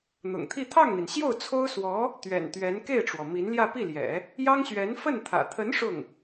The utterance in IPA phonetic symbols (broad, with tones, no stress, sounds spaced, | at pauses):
n̪ ʊ̰˨˩ ŋ t̪ʰ i˥˧ t̪ʰ ɑ˥˩ ŋ n̪ i˩ n ɕ j o˥˩ ʊ̯ t͡sʰ o˥ ʊ̯ s w ɔ˧˥ | t̪ ɥ ɛ̰˨˩ n t̪ ɥ ɛ˧˥ n k e˥˩ ɪ̯ ʈ͡ʂ w ɔ˩ m i˧˥ n l j ä˥˧ p i˥˩ l j ɛ̰˨˩˦ | j ɑ˥ ŋ ɕ ɥ ɛ˧˥ n f ə˥˩ n t̪ʰ ä̰˨˩ t̪ʰ ə˧˥ n ʂ ʊ˥˩ ŋ